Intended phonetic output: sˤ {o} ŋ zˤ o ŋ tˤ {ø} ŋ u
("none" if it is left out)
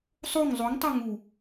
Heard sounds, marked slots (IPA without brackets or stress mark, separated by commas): o, ø